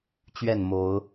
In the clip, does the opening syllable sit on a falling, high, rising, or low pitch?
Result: falling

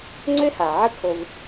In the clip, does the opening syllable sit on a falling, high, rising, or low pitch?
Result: high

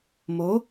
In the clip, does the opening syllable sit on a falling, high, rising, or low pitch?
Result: rising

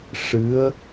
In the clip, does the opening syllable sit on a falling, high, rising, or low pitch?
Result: rising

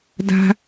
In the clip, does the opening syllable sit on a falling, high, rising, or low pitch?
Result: high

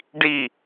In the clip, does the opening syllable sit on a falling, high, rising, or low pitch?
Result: falling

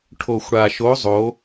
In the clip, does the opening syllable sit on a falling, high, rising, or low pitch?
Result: low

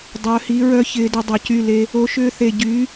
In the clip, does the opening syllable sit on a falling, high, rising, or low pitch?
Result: rising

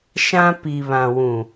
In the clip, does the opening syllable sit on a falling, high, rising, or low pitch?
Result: high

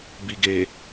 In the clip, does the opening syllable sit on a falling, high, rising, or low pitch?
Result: low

